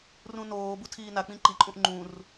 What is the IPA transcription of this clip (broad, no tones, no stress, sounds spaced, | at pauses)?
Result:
r ũ n oː b u tʰ iː n a k͡p ĩ ǃ i ǃʼ ũ ʔ ŋ͡ǃ ũ r